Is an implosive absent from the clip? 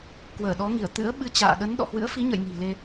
no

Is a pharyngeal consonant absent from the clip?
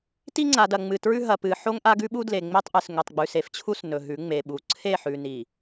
no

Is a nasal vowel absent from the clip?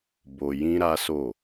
no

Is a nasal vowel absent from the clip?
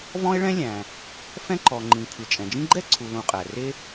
no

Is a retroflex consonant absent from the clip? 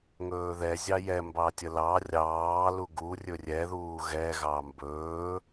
yes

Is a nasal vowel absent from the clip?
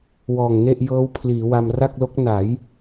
yes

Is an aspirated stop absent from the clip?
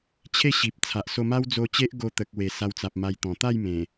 no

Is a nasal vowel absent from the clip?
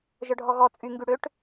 yes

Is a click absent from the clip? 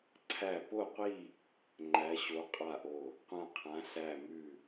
no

